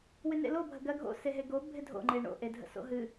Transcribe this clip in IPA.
wɪnḛlobʱə ɡɜɡʱo̰ seɦeɡo bʱɪdʱo̰ŋ͡ǃe ɳo̰ʔedʱə̰ so̰ɦɨ

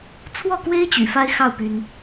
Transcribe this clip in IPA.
t͡sʰwɔ˥˩kwe˥ɪ̯ t͡ɕy̰˨˩fa˥ɪ̯xɑ˥˩ʊ̯ py˥n

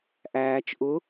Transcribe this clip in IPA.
ʔæːt͡ʃ ʔʊ

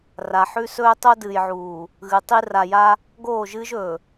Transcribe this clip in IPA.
ra˨ ħʉ˦sɵː˦ tˤo˦ dɨː˨jʕuː˨ | ɣɨ˨˦tˤi˦ ra˨ja˦ | ɡoː˦˨ʒɨː˦ʒɵː˨

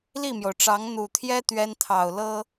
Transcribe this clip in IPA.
li˥˩mjo˩ʊ̯ʈ͡ʂɑ˧˥ŋ n̪u˨˩t̪ʰjɛ˥ t̪ɥɛ˥nt̪ʰɑ˨˩ʊ̯lɤ˥

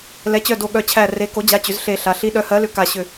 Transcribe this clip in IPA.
lɛ˩˥t͡ɕœ˧˩ do˧˩ ɠœ˧˩t͡ɕʰæ˧˩re˩˥ ko˩˥d͡ʑa˩˥ t͡ɕʏ˩˥zɬe˧˩ɬa˩˥ ɬi˩˥ɗœ˩˥hɜ˩˥lʏ˩˥ ka˧˩ɕʏ˧˩

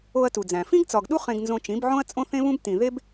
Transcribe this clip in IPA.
o˧ɐ̯tu˨d͡zæ̃˨ fĩ˦ɡt͡sɒ˨ɡɗu˦ χẽ˧ɡnzõ˧t͡ʃĩ˨˦bʕõ˦ɐ̯ t͡sʼõ˦θẽ˦βũ˦b tĩ˨ðe˦b

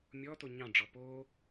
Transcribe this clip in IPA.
mʲɔto ɲɑ̃ɖ͡ʐɔ po

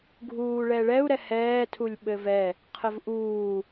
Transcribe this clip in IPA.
ɡʱuːɭɛɭɛu̯ ɾɛhɛː tʰulʲɓɘvɛ | qʰəvʔuː

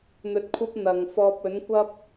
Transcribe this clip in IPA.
n̪ɵ˧t̚kʷʰɐ˥p̚ n̪ɐ˨ŋfɔː˧p̚ ɵ˨˥nkʷɐ˥p̚

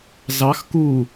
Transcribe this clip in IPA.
zɑx ku

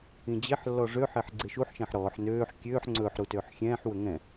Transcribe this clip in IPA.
ĩd͡ʑeħlːɔ ʐøħeħ ɡ͡ǀeʃuħʃɛ̃ħ ɾɔːħ nøːħ kʲøːħ ŋ͡ǀɵːħɾu tøːħxʲɛ̃ːħwɵ ŋɛ̃

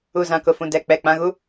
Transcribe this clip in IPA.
u˨zã˨kʊ˨fũ˨ dɛ˦˨k͡pɛ˦˨k͡pã˦ɣu˦

